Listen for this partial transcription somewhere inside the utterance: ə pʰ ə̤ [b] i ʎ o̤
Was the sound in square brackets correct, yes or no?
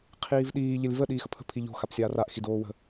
no